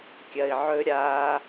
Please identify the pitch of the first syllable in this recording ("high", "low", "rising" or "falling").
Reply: low